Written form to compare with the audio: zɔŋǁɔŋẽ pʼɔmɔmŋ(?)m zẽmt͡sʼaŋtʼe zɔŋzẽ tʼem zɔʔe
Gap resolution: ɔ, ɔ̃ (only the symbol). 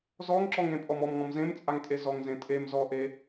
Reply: ɔ̃